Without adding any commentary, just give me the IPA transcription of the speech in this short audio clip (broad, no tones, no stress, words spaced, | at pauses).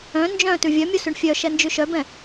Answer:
œ̃ nd͡ʒœ̃ tʉvʲœmʲu syɳfʲœʃɛ nd͡ʒʉʃœbɛ̃